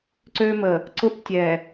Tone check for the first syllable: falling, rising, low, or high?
high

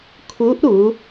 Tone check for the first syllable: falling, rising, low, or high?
rising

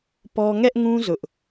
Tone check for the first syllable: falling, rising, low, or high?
high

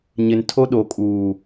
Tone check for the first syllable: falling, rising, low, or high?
low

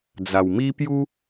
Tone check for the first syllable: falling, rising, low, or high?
low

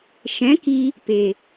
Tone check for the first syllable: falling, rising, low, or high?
rising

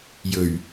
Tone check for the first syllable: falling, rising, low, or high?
low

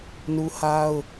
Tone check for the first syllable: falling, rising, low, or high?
high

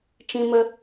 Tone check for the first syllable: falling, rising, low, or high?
high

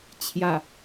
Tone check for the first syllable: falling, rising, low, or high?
low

